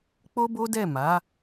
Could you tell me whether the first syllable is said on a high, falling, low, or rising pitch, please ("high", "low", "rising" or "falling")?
high